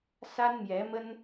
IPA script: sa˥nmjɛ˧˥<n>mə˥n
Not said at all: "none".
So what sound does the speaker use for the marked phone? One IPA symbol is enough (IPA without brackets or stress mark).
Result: none